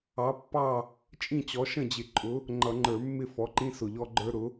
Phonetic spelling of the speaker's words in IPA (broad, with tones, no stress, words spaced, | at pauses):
ɑ˩˥pːɑ˥˩ | t͡ʃʼĩ˥˩t͡ɕɔ˩˥ ʃə̃˥˩d͡ʑɪ˨˩ǃʼʊ˩˥ | ŋ͡ǃʌ˧˩˧ŋ͡ǃə˞˧˩˧mːɪ˥˩ fɔ˩˥ǃĩ˦sʊ˨˩ʎɔ˦ ɡ͡ǃə˞˦ɾʊ˩˥